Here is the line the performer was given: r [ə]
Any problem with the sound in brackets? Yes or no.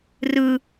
yes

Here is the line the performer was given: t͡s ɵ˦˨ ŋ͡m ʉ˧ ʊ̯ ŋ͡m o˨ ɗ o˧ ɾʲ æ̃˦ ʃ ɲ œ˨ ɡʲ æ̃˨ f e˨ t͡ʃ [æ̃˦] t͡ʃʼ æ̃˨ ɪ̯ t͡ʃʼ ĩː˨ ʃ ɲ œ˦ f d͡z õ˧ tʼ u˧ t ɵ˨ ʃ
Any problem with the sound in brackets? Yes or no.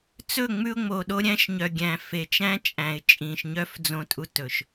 no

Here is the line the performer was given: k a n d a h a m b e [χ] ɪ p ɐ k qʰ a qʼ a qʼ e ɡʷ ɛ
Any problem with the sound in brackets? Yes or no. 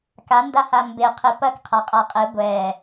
yes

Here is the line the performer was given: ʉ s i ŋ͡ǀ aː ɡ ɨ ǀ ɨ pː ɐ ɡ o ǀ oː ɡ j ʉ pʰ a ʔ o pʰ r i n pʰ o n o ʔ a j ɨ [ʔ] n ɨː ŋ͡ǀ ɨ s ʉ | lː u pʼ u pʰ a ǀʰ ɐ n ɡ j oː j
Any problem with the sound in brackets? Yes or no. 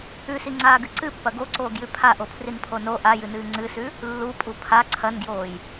yes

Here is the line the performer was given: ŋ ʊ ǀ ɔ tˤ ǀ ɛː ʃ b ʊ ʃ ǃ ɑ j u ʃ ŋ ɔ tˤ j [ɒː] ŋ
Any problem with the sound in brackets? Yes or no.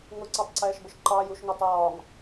no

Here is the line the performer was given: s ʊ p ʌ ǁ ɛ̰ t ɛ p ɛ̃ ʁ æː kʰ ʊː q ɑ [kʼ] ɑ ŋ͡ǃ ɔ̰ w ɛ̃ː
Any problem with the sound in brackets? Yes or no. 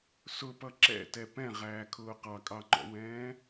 no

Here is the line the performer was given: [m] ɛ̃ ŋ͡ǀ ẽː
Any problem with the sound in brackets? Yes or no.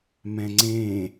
no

